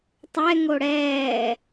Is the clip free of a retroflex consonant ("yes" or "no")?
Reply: no